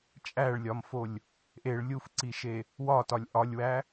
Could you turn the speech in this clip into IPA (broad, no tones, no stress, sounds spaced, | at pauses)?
t͡ʃʼ æ ɭ lʲ ɒ m f o lʲ | ʔ e ɭ lʲ u f ǀ i ʃ e | w ɒ t ɒ lʲ ʔ ɒ lʲ w æ